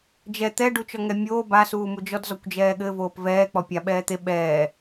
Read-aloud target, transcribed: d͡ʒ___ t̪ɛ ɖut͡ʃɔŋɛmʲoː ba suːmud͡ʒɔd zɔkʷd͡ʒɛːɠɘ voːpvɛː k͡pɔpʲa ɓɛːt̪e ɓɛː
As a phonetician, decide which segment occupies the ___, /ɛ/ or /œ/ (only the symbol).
ɛ